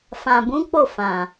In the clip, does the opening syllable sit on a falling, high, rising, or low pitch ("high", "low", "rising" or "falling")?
low